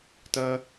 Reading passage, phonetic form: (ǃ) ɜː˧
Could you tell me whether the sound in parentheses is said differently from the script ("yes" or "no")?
yes